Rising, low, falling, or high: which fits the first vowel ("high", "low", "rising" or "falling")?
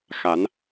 rising